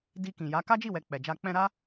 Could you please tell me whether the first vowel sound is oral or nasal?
oral